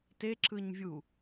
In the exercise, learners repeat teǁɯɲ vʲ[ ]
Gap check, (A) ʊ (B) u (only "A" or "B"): B